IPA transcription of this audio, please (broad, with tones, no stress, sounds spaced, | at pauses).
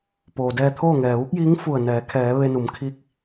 p oː˩ d ɛː˧ t̪ʰ oː˥˨ ŋ ɛː˩ ʋ u˧˥ k̚ j iː˧˥ ŋ f u˧˩ ə̯ n ɛː˩˧ kʰ ɛː˩˧ ʋ e˧ n u˩˧ m kʰ i˧˥ k̚